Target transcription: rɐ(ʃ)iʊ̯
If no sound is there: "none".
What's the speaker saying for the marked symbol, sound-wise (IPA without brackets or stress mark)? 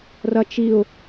t͡ʃ